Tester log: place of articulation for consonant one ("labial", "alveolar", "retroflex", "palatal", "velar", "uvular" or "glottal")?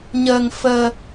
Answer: palatal